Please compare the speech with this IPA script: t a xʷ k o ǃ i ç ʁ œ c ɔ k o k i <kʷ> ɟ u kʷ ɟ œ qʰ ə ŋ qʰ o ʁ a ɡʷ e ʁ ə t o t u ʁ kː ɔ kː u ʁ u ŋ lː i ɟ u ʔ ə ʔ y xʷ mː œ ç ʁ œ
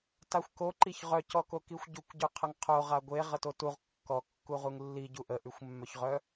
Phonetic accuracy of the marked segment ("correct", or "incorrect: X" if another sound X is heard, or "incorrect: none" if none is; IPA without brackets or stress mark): incorrect: xʷ